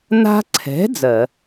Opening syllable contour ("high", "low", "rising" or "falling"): high